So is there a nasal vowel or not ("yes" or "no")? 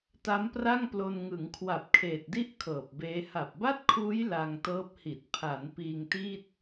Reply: no